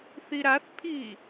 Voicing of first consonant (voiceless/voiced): voiceless